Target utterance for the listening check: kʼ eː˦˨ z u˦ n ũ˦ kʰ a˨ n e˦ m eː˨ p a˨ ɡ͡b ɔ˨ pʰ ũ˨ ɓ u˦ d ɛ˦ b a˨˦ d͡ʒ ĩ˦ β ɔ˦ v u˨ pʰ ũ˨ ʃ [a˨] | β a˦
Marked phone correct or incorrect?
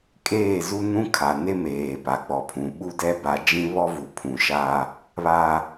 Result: incorrect